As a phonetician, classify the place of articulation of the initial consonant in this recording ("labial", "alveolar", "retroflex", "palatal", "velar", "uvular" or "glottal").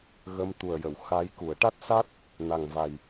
velar